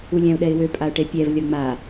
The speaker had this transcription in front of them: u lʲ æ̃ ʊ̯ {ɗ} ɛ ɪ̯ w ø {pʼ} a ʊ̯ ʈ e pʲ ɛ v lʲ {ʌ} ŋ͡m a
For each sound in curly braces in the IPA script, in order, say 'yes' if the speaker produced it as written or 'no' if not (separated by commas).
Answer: yes, yes, yes